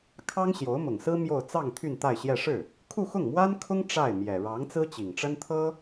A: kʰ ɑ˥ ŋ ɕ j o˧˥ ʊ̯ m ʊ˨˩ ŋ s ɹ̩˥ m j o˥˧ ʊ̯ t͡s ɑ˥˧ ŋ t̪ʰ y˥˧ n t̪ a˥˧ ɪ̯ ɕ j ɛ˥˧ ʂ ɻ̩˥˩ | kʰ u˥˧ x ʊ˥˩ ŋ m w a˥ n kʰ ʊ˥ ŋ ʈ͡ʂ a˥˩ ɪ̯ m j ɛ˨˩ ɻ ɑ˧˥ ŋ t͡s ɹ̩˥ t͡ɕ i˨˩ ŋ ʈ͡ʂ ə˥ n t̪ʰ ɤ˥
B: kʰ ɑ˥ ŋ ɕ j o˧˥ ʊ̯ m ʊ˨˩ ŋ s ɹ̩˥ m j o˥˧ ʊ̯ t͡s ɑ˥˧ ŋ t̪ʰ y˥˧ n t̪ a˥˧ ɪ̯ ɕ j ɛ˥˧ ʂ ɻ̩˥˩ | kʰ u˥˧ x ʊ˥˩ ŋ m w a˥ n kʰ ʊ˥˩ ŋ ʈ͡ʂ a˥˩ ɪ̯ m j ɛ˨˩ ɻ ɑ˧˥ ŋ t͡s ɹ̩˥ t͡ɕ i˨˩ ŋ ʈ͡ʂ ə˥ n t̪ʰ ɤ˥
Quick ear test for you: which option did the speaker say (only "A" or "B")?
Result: A